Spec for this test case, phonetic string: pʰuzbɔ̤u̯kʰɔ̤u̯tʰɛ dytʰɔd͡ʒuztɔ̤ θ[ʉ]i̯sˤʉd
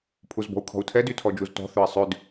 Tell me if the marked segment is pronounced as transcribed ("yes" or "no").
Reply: no